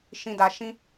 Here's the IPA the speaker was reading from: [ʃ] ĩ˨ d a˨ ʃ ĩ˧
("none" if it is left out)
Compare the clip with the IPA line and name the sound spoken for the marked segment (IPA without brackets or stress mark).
ʃ